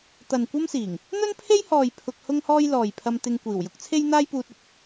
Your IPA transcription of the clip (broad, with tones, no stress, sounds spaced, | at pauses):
t̪ ɐ˨ n kʷ ɐ˥ m s iː˨˩ ŋ | n̪ ɵ˥ n pʰ e˥ j h ɔː˨ j pʰ ʊ˧ k̚ h ʊ˥ ŋ h ɔː˥ j l ɔː˨ j pʰ ɐ˧ m t̪ ɪ˧ ŋ kʷ iː˨˩ w j ʊ˥ k̚ t͡sʰ e˥ j n̪ aː˥ j p uː˧ t̚ ʊ˨ k̚